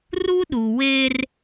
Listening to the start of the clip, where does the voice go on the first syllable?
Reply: high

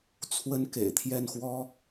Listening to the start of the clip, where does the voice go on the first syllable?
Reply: high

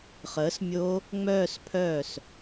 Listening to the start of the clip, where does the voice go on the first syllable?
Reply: rising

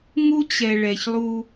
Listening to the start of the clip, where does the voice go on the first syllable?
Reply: high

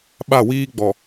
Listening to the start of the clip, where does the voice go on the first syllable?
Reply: falling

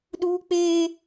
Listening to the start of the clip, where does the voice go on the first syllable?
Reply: high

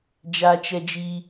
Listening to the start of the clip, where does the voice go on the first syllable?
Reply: high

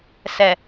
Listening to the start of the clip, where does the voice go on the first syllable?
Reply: low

